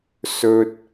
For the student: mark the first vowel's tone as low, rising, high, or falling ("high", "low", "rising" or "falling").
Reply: high